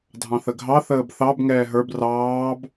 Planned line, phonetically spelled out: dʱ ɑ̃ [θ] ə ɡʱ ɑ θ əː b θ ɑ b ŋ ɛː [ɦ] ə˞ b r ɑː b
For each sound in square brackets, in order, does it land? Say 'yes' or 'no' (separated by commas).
yes, yes